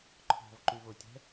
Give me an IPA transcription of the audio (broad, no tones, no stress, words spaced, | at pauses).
ǃʰɔ̤vǃyvotʲɛ̤